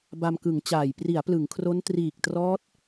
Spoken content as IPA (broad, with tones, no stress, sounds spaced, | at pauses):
b a˧ m k ɯ˩˦ ŋ t͡ɕ aː˨˩ j p r i˩˦ a̯ p l ɯ˩˦ ŋ kʰ r o˦˥ n t r iː˨˩ k̚ t r ɔː˦˥ t̚